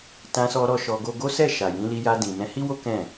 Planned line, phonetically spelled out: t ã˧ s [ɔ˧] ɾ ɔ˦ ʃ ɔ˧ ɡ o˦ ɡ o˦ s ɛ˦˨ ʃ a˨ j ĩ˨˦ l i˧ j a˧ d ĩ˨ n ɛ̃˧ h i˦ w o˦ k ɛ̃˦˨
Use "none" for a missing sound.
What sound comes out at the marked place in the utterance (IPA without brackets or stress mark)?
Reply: ɔ˧